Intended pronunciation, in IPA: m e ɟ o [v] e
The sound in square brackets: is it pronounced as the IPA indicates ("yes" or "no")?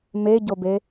no